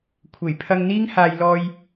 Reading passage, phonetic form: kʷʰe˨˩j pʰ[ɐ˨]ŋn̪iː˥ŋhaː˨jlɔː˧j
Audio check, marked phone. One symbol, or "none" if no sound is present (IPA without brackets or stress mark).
ɐ˧